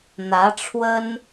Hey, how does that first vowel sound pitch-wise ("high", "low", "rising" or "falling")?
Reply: rising